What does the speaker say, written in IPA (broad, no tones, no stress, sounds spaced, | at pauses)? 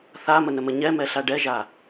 θ a m ə n ə m ə ɲ ɛ m ɛ ɬ a ɖ ɛ ʒ a